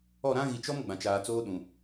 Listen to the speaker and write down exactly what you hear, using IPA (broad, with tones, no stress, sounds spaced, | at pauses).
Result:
ɔ˦˨ ɾ ã˦ ɣ i˨ t͡ʃ ɔ˦ m ɡ͡b ã˨ t͡ʃ aː˨ t͡s oː˦ ɗ ũ˨